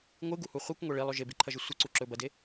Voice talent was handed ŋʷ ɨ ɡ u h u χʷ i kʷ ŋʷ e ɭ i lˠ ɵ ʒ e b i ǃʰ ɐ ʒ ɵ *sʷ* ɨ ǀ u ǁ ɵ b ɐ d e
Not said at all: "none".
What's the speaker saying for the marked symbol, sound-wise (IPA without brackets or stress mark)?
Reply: sʷ